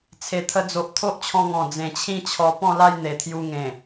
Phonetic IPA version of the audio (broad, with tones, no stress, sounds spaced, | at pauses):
t͡sʰ e˨˩ t̪ʰ ə˧ d͡z o˨ ʔ t̪ʰ o˦ ʔ t͡ɕʰ ɔ̃˧ ŋ ɔ̃˨˩ d͡z ẽ˨˩ t͡ɕʰ ĩ˥˧ t͡ɕʰ ɔ˧ p ɔ̃˥˧ l a˥˧ j n̪ e˨˩ t̪ʰ j u˧ ŋ ẽ˨˩